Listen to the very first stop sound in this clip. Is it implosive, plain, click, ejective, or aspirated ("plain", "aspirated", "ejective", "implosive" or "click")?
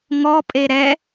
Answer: ejective